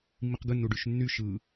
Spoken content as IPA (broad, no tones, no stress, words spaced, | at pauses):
mːiqɡɯnːu ɖyʃnːy ʃɯ